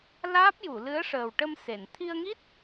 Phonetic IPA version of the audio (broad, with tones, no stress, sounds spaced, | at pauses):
l aː˦˥ p̚ j u˨˩˨ l ɨ˧˥ ə̯ ʂ əː˨˩ w ʈ ə˧ m s e˨˩˨ n t̪ʰ i˧ ə̯ ŋ i˦˥ t̚